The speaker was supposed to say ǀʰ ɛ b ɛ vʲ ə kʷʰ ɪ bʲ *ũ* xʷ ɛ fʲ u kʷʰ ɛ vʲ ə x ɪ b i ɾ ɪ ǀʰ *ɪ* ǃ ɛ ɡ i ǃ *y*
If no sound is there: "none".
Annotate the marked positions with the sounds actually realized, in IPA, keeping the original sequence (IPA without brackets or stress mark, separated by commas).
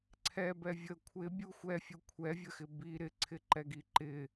u, ɪ, ɪ